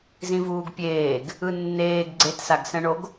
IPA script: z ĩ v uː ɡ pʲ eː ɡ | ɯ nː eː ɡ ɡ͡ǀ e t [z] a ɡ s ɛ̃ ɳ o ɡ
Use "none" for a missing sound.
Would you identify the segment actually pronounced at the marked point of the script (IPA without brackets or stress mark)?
s